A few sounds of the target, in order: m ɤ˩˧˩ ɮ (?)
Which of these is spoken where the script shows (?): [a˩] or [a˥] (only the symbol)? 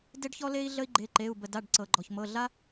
a˥